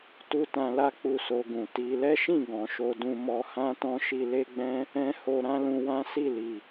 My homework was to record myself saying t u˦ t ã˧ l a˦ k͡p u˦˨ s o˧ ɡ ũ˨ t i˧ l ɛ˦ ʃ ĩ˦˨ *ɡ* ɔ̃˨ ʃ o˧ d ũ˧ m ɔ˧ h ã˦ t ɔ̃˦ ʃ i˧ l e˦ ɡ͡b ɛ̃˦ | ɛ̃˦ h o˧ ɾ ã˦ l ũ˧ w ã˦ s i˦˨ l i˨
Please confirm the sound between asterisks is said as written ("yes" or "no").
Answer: yes